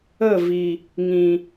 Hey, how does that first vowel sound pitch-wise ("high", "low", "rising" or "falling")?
falling